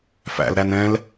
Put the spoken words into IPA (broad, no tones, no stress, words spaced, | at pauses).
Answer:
fæ̰lɾæn ɛ̃l